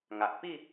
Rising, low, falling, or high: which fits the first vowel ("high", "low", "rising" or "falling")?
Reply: low